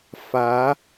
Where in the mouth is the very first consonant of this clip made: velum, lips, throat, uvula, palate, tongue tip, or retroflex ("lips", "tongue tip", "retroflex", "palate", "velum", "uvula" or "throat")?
lips